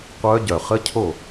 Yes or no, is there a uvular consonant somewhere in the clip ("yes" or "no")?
yes